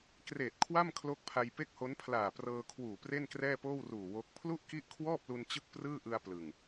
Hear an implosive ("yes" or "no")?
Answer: no